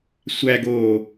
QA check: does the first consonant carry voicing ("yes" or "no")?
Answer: no